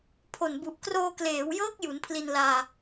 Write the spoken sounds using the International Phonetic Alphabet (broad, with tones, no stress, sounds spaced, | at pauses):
pʰ o˨˩ n b u˨˩ ʔ k r oː˧ k l eː˩˦ w j ɤː˦˥ k̚ j u˩˦ n pʰ l i˧ n l aː˧